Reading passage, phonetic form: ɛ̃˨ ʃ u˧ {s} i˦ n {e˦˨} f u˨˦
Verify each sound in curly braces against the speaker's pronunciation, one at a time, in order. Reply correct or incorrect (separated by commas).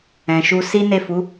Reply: correct, correct